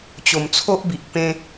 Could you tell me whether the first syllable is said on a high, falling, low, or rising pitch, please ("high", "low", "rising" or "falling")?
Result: low